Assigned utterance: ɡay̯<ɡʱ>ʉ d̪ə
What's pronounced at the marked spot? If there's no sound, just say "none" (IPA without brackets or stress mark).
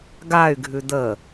ɡʱ